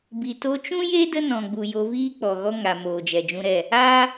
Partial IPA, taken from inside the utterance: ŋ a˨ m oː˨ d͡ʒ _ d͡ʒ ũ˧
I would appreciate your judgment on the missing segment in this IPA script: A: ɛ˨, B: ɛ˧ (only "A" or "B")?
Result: A